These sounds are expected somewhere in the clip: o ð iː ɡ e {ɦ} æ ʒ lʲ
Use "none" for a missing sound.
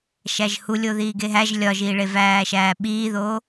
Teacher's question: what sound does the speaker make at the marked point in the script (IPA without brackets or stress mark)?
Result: ɦ